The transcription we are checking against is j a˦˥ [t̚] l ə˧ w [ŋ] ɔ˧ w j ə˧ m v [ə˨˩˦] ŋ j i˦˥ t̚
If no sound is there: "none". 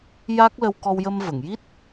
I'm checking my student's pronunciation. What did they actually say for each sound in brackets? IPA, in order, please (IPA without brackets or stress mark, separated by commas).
k̚, k, ə˨˩˨